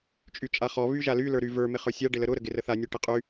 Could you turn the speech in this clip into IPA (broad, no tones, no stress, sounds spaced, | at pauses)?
t͡ʃʼ y t͡ʃʼ a χ ɔ β y ʒ a l y l ə˞ ɾ y v ə˞ m ɪ χ ə˞ sʲ a ɖ ɪ l ə ɾ ʊ ɾ ə ɡ ɪ r ə θ a nʲ ɔ ʈ ɪ qʼ y